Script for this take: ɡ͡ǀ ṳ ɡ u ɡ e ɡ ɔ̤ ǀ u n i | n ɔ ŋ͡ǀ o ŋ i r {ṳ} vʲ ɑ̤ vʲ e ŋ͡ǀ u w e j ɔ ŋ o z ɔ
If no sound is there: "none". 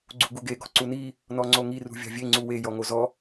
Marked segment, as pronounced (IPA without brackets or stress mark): ṳ